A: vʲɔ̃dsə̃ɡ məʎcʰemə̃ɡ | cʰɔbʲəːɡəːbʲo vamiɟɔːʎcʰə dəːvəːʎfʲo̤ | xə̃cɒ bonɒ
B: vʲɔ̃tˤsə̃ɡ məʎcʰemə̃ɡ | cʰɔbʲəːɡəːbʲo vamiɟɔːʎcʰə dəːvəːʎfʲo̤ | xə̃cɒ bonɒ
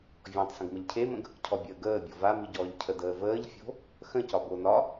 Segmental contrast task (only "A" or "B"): B